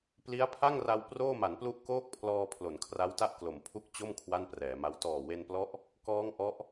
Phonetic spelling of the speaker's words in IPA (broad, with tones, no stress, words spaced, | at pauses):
pli˦˥a̯pʰa˥˩ŋra˧w proː˥˩ma˩˦nplu˥˩ʔkoː˥˩k̚ pʰlɔː˧ pʰlo˩˦nkʰra˦˥wta˥˩ʔklo˩˦m pʰu˦˥k̚ t͡ɕo˥˩m kʰwa˥˩nprɛː˩˦ma˦˥w tɔː˨˩we˧nplɔ˦˥ʔ | kɔː˦˥ŋ ʔɔ˦˥ʔ